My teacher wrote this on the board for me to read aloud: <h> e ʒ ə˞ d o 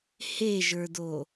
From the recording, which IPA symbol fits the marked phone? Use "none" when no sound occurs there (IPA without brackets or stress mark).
h